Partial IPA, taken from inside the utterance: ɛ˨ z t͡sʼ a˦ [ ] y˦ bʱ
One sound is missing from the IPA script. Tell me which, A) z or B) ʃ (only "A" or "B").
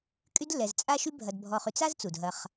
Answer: B